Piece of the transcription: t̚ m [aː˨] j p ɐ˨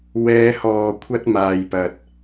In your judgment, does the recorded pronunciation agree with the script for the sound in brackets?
yes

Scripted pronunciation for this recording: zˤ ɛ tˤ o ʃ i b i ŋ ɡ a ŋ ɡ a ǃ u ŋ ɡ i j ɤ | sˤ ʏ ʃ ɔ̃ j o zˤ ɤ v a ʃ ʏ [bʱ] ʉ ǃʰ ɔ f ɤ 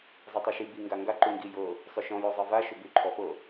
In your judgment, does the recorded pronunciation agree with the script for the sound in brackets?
no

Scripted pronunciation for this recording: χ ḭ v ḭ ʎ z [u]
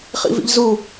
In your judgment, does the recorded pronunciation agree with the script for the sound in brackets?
yes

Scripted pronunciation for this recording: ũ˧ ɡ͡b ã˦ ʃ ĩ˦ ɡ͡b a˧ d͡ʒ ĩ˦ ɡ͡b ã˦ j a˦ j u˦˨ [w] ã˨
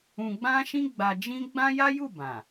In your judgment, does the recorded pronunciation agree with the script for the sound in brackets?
no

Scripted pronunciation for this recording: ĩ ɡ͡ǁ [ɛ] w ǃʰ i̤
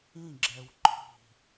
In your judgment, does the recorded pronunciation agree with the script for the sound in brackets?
yes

